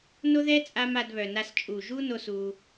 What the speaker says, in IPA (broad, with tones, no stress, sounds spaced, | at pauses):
n o˦ ð ɛ˦ t͡sʼ a˧ m a˧ d β œ˨ n a˧ s t͡ʃʼ u˨ ʒ u˦ n o˧ s u˧